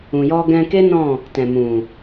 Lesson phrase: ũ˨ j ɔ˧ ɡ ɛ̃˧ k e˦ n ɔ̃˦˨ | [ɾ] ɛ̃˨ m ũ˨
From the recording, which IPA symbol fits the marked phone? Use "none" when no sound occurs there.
t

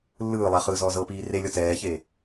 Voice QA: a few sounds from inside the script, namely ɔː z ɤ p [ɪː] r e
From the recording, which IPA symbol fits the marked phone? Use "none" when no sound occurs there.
iː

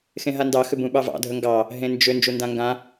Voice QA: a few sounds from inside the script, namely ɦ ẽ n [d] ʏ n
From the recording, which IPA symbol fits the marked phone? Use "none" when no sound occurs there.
d͡ʒ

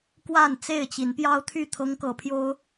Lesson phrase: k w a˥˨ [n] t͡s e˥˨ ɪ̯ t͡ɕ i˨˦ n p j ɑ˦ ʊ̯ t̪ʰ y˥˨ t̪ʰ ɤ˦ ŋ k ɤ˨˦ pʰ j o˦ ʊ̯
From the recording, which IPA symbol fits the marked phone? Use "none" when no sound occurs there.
n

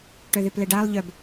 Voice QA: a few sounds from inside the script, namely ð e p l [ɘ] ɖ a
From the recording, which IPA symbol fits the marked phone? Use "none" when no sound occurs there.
ɛ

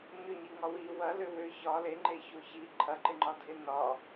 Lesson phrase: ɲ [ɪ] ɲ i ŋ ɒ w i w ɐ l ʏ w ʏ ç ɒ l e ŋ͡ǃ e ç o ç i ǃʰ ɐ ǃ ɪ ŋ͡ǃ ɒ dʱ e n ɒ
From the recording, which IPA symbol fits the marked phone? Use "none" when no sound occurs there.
ʏ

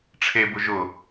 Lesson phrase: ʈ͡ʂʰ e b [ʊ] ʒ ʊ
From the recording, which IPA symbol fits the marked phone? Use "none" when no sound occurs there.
ʊ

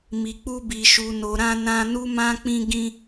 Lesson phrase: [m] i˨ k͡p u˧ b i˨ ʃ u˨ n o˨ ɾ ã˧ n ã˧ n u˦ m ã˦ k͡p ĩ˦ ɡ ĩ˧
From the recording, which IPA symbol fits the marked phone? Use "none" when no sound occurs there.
m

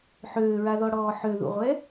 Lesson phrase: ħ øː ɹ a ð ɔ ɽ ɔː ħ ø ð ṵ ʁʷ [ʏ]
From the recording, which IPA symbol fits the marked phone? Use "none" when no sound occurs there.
ɛ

